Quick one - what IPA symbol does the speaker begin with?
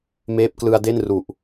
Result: m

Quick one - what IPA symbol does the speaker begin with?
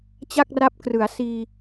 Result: t͡ɕ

